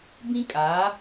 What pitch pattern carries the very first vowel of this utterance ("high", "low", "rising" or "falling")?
high